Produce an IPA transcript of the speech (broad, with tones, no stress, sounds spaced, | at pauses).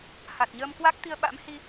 h a˨˩ t̚ ɲ əː˧ m k w a˦˥ k̚ t̪ i˧ ə̯ ɓ a̰˧˥ m h i˧